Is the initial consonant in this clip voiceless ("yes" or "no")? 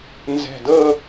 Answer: no